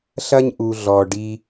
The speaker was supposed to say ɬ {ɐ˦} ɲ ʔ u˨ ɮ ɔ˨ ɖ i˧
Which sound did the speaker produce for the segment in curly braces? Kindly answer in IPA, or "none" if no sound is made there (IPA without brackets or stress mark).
ɐ˦